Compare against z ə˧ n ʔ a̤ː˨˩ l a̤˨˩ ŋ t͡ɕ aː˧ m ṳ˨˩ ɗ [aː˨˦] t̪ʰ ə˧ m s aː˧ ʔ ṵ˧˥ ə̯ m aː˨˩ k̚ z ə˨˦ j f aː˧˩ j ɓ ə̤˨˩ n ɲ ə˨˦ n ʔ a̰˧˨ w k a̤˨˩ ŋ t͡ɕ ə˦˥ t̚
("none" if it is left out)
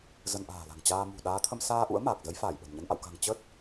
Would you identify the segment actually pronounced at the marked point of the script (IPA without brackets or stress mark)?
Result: aː˨˦